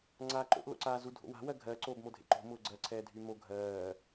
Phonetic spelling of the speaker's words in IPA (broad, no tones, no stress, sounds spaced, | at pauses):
ŋ͡ǀ aː ǃ o̰ ʔ l o̰ ǀ aː z u dʱ o̰ w a̤ w ɜ ɡʱ ɜ ǀ oː b m o dʱ ḛ ǃ o̤ m ʊː ɡ͡ǀ ɜ ǀʰ ɛː dʱ y m o ɡʱ ɜː